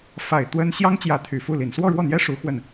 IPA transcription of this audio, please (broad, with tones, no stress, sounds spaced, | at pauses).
f a˨˩ ɪ̯ t̪ w ə˥ n ɕ j ɑ˥ ŋ t͡ɕ j ä˧˥ t̪ʰ y˨˩ f u˥˩ l i˨˩ n s w ɔ˥˧ ɻ w ɔ˥˩ n̪ j ɛ˥ ʂ u˧˥ x w ə˥˩ n